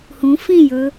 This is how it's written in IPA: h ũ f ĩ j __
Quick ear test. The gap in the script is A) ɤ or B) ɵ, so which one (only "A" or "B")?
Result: B